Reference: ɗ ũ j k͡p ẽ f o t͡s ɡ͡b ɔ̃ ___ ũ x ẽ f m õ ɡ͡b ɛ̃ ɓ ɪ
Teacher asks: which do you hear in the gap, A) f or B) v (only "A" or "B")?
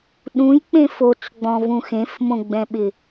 B